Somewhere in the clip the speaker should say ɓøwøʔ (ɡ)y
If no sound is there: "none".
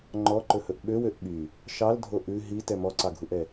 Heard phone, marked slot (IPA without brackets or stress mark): ɓ